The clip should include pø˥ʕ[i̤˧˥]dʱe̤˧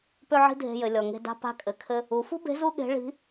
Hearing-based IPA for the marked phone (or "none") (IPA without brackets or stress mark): i̤˥